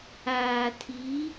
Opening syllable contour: low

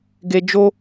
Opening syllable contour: high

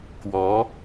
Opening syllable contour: rising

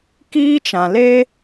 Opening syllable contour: high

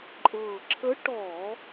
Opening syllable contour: low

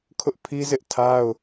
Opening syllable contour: high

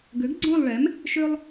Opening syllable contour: rising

